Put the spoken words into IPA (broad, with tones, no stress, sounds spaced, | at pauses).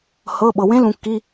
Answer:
h ɤ˩˧˩ ɓ ɤ˩ w ẽ˧˥ l ũ˩ kː i˩˧˩